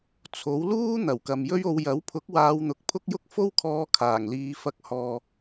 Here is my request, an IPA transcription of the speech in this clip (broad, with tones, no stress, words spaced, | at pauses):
t͡sʰo˨˥wluː˥ n̪ɐ˨˩wkɐ˨mjɵ˥ɥo˧w jɐ˨˥wpʰʊ˨˥k̚waː˨˧w n̪ʊ˨˥k̚pʰʊ˥k̚jʊ˥k̚ fo˥wkʰɔː˧ kʰaː˨˩ŋliː˨˧ fɐ˨˥k̚ hɔː˨